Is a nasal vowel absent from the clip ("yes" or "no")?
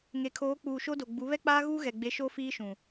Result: no